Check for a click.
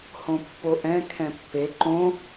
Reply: present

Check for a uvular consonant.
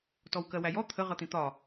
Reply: present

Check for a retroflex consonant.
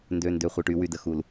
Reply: present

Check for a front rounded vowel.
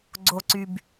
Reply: present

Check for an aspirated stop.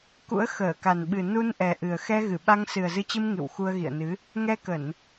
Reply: absent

